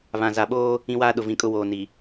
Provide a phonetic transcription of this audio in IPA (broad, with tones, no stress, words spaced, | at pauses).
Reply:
βã˨za˨ɓoː˦ | ĩ˦waː˦ ɗʊ˨vĩ˨kʼʊ˦ woː˨ ni˨